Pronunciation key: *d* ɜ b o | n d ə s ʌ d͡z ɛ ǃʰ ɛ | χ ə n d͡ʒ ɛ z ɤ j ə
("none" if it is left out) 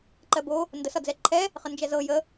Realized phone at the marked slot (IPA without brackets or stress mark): ǃ